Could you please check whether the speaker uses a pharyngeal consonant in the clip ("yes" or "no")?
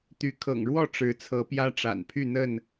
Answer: no